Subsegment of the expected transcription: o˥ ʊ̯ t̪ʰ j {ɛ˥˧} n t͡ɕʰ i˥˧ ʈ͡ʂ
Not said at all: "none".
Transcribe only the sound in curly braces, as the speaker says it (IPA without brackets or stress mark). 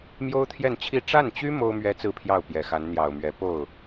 ɛ˥˧